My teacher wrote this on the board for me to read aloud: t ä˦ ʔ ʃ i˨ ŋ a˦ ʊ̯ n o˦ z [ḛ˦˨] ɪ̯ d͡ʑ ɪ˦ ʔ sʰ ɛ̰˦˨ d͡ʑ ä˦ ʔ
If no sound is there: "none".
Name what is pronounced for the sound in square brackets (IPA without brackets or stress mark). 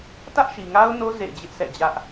ḛ˦˨